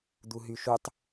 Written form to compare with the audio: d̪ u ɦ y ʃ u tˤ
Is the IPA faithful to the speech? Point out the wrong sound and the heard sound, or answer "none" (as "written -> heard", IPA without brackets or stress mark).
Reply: none